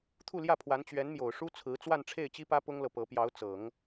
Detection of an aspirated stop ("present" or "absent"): present